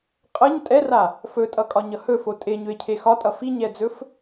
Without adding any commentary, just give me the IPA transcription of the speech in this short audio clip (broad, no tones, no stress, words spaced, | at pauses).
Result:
qʼʌɲ tʼɛra | fɵtʼʌkʼɒɲʌ hɵfo tʼeɲɵe̯cʰe xɒtʼʌ fiɲɛd͡zɵf